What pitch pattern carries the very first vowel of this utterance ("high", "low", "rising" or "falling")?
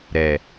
low